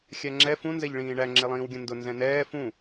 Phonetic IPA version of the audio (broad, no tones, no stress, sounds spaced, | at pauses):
xʲ æ ŋ͡ǁ ɛ f ũ n z ɛ ʎ ɭ ĩː ɳ æ ŋ͡ǁ ɪ lˠ ĩː w ɡʲ ə̃ n d ʊ n z ɛ̃ n ɛː f ũ